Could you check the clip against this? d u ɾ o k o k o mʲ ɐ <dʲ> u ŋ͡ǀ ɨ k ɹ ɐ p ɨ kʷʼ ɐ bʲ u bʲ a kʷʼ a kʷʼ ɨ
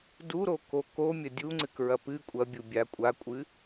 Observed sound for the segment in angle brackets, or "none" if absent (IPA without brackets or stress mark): dʲ